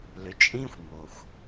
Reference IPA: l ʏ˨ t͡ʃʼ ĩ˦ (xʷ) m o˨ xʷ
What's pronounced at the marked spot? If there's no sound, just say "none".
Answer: xʷ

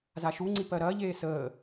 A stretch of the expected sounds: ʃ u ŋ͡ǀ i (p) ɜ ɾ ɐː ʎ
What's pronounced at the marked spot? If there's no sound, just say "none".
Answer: p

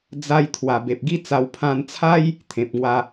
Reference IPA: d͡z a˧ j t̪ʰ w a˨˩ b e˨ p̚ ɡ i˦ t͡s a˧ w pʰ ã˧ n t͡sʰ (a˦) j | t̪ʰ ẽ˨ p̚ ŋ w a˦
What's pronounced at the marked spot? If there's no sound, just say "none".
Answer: a˦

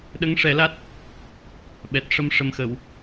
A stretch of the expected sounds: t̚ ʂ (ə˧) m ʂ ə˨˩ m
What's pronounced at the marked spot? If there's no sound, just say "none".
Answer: ə˧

